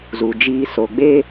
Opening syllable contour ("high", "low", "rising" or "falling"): low